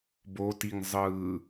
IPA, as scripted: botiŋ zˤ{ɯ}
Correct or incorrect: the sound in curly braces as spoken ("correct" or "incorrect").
incorrect